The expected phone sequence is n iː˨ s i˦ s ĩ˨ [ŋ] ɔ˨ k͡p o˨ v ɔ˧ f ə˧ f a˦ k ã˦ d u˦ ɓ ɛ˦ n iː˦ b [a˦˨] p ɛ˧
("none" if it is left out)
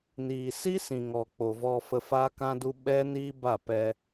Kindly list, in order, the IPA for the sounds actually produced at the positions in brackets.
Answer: ŋ, a˦˨

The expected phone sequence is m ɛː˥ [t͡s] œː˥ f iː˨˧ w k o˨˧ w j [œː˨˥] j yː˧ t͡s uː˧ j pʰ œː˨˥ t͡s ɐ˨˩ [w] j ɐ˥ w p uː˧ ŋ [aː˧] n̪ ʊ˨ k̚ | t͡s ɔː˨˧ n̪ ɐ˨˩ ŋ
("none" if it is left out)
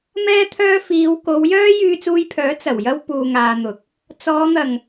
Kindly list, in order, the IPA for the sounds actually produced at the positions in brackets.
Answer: t̪ʰ, œː˥, w, aː˧

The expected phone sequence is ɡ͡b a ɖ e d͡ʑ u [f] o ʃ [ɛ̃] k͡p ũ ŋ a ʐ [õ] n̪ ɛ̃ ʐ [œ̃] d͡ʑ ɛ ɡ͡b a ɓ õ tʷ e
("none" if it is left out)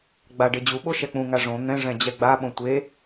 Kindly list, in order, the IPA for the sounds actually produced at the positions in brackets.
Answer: ɓ, ɛ, õ, ɛ̃

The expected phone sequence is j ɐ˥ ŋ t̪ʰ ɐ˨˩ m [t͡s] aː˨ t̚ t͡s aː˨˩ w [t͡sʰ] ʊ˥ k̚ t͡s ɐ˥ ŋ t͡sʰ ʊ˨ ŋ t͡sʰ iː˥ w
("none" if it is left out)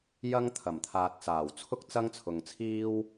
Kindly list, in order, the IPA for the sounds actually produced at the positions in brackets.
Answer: t̪ʰ, t͡sʰ

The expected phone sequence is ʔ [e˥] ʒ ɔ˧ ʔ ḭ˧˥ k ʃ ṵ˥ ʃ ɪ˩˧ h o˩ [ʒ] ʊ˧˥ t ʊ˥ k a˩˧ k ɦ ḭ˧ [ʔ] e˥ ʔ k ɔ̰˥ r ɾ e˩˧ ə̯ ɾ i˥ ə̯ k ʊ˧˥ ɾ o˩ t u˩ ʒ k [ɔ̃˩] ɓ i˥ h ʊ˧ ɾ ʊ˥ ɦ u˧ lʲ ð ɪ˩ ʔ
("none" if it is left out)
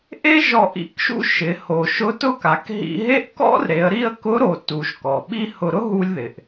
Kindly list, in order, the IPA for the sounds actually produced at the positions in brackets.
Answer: e˥, ʃ, ɦ, ɔ˩

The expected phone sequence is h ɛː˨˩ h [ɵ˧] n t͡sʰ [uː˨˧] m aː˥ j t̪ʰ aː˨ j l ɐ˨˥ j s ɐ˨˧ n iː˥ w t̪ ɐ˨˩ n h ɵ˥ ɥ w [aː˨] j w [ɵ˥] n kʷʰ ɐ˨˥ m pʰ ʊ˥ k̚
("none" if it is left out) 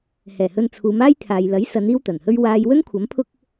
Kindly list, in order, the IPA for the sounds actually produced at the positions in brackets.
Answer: ɵ˧, uː˨˧, aː˧, ɵ˥

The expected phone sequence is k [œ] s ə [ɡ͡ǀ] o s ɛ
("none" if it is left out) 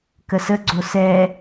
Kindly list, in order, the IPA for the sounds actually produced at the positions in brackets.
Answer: ə, ɡ͡ǀ

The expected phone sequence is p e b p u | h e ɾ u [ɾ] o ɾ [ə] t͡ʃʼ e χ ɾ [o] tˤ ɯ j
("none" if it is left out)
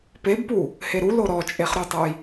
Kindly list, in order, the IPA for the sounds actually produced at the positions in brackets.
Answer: l, ɔ, u

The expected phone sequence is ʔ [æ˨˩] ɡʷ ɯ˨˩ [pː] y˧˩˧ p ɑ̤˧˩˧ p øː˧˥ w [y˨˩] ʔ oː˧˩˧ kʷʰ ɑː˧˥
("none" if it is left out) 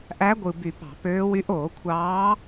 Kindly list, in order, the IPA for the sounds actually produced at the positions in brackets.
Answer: æ˧˥, b, y˧˥

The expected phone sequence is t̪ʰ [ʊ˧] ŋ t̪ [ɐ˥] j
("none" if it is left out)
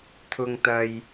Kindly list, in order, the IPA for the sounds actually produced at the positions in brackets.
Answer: ʊ˧, ɐ˧

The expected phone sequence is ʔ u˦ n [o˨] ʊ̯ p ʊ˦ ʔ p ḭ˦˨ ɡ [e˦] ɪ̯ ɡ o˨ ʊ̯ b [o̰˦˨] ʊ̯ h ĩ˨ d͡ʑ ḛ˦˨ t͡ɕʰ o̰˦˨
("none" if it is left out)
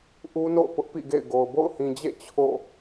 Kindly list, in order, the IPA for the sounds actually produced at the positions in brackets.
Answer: o̰˦˨, ḛ˦˨, o̰˦˨

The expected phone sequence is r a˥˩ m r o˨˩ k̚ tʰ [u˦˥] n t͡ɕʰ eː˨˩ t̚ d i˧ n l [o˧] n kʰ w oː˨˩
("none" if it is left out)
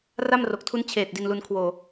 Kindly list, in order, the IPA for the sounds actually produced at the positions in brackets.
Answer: u˦˥, u˧

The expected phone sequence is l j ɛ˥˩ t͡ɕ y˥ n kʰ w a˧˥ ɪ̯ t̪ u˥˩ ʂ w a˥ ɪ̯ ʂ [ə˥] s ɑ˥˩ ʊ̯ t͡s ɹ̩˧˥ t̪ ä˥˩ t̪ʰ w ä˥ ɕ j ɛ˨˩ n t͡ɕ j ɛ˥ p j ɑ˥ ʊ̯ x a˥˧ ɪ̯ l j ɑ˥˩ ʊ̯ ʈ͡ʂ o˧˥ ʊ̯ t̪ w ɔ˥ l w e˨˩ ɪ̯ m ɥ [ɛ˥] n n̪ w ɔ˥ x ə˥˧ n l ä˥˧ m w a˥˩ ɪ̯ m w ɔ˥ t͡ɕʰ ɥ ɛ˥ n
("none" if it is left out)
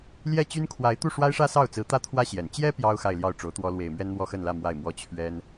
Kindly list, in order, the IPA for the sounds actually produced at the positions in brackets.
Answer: ä˥, ɛ˥

